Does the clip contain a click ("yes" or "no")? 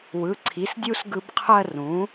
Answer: yes